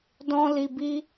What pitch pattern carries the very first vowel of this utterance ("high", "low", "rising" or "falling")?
high